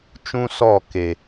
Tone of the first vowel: high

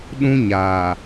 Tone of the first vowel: high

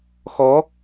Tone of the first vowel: rising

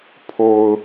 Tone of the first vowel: low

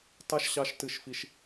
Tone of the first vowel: high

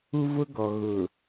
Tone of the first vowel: high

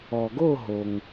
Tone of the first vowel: low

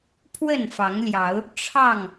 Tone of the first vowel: falling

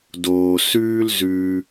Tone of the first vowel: low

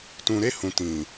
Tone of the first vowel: low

